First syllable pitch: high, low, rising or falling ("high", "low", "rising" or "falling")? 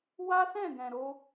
high